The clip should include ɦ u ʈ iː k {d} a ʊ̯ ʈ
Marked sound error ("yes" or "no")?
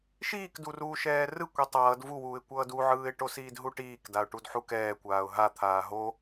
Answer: no